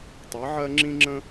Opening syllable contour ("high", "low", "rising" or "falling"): rising